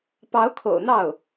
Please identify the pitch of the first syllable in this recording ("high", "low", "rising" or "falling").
rising